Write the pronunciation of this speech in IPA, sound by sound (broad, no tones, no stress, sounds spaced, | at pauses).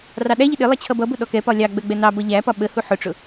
r ɑ ɗ æ ʎ ɪ ɗ ɪ lˠ ʌ t͡ɕʰ ʌ b ʌ b ʊ ɗ ɔ k ɛ p ɒ lʲ ɑ ɡ͡b ɜ ɡ͡b ɛ n ɑ b ʌ ʎ æ p ɒ ɓ ə h u ħ ʊ ʈ͡ʂ ʊ